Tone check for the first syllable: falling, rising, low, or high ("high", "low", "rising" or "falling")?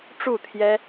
falling